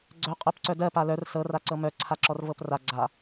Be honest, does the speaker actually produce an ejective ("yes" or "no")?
yes